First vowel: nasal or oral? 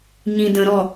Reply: nasal